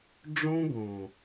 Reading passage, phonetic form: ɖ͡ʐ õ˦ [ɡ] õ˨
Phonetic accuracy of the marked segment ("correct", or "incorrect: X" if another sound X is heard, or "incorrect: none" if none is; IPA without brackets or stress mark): correct